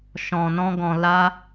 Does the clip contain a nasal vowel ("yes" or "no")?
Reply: yes